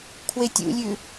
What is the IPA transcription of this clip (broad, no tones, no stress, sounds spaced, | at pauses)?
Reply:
kʰ w e tʲ ṵ lʲ ʉ